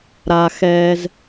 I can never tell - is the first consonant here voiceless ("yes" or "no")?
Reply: no